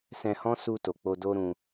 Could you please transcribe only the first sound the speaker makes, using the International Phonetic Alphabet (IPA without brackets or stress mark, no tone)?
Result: s